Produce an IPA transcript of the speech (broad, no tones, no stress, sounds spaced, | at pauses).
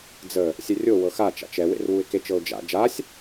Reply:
d͡z ə | sʲ ɛ rʲ o w ɤ x a t͡ʃ a̰ t͡ʃ ɛ w ḛ r w u ɪ̯ k e t͡ʃ ɤ ʊ̯ d͡ʒ a̰ d͡ʒ a sʲ